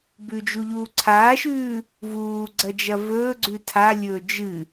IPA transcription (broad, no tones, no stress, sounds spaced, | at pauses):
b ʉ d͡ʒ u ʎ uː ǀʰ aː ʃ ʉː | v uː ɡ͡ǀ ɐ d͡ʒ ɐ v ɵː ɡ͡ǀ ʉ tʰ a lʲ ɵː d͡ʒ ɨ